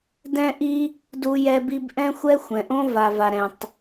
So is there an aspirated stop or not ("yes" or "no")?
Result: no